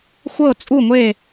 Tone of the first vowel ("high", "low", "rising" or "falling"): falling